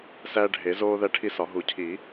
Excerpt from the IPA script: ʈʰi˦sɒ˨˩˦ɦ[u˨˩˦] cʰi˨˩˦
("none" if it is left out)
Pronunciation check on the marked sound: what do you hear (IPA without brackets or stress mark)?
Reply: u˨˩˦